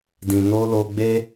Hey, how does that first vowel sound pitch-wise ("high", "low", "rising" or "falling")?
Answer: low